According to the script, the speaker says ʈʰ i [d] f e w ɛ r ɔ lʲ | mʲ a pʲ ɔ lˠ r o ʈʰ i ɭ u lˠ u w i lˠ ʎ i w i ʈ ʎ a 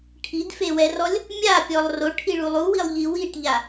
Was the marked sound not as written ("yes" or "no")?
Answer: no